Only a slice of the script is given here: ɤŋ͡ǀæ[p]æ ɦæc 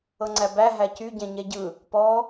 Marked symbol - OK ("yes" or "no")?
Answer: no